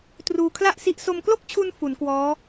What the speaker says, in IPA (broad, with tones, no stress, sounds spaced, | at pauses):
t r uː˧ kʰ l a˥˩ ʔ s i˦˥ ʔ s o˧ m k l o˥˩ k̚ t͡ɕʰ u˧ n f u˩˦ n k w ɔː˦˥